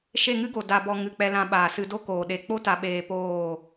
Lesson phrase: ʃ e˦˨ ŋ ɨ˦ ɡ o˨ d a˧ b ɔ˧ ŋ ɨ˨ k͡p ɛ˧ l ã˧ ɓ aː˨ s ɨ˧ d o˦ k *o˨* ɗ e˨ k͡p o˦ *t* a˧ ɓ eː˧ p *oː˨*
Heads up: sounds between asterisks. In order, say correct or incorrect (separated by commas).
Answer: incorrect, correct, incorrect